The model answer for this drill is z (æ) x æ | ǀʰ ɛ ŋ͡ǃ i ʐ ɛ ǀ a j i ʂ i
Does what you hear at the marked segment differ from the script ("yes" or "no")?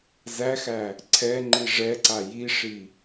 no